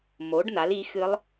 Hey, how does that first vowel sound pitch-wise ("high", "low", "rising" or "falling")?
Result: rising